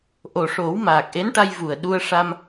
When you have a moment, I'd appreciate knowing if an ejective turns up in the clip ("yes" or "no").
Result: no